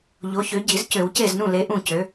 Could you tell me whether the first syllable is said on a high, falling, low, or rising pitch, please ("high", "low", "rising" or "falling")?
rising